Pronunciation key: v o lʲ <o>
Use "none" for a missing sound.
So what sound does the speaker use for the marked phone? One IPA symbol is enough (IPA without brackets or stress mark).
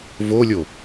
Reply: o